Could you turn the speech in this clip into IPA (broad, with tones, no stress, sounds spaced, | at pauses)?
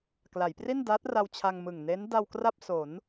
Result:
k l a˩˦ j p r i˥˩ n d aː˦˥ t̚ r a˧ w t͡ɕʰ a˧ ŋ m ɯ˨˩ ŋ n e˦˥ n d a˧ w k r a˥˩ p̚ s o˩˦ n